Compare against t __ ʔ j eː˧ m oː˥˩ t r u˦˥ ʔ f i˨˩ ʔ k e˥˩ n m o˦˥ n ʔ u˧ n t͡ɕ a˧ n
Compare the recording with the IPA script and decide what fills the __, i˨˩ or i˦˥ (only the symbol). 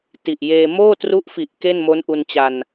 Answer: i˨˩